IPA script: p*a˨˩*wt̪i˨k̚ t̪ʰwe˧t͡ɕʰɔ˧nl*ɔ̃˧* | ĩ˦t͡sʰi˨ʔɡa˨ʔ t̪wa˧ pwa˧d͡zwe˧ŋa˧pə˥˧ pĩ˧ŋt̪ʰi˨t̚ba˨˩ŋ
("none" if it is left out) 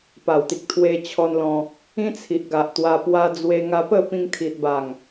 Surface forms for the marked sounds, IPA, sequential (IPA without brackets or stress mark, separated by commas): a˨˩, ɔ̃˧